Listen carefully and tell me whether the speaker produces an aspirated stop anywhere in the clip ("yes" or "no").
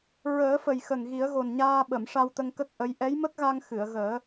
no